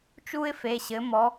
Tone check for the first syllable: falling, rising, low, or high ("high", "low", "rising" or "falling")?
high